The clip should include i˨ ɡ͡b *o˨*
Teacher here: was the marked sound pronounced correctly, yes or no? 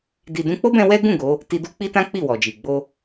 no